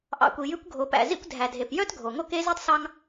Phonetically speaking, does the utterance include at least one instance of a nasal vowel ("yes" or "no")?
no